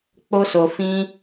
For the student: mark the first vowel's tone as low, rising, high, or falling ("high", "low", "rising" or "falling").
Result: high